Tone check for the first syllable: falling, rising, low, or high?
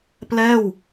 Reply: falling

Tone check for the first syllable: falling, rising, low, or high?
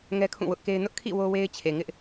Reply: high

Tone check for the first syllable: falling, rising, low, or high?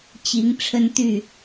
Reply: rising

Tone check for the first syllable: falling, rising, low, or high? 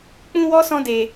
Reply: high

